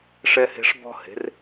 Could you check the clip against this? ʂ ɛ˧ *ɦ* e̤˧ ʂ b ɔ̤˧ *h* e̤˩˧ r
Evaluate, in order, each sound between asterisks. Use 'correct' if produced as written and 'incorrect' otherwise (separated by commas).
incorrect, correct